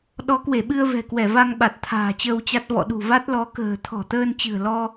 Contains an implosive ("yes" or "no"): yes